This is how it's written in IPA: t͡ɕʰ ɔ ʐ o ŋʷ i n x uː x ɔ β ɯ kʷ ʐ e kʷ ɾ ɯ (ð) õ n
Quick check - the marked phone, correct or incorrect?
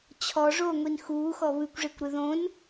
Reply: correct